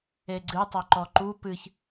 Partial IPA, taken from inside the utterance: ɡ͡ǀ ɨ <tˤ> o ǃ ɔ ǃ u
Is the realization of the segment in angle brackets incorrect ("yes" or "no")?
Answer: no